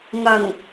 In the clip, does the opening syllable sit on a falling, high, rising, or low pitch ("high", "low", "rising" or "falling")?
low